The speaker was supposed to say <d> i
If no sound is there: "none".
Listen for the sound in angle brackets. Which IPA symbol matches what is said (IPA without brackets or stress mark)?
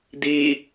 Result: d